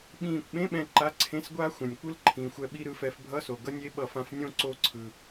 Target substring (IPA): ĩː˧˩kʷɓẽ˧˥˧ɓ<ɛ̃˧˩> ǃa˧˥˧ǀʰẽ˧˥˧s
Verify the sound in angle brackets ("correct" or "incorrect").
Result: correct